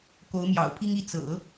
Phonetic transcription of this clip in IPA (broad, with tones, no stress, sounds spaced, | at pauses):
k o˧˥ ʊ̯ m j ɑ̰˨˩ ʊ̯ pʰ i˥ ŋ i˥˩ t͡s ɤ̰˨˩˦